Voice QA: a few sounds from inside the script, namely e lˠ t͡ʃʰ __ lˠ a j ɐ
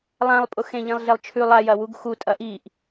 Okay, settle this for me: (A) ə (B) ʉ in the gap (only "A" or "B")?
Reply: B